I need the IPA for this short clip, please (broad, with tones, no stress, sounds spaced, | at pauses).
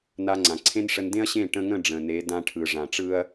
n a˧ ŋ͡ǀ ã˨ ǀʰ ẽ˦ n ʂ ə˧ n d ẽ˦ ɐ̯ ɕ ẽ˦˨ ʈ ə̃˧ ŋ ə̃˦˨ ɖ͡ʐ ə̃˨ n e˨˦ d ã˧ ʈʰ ɯ˨ ʐ ã˨ ʈ͡ʂ ɯ˦ ɐ̯